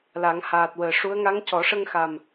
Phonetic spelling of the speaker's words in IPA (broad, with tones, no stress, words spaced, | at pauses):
la˨˩˦ŋhaː˨˩t̚wəː˨˩ ʂu˧˥ə̯ ŋa˧˥ŋcɔ˨˩˦ʂə˧ŋxa˨˩m